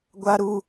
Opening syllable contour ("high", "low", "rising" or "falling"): high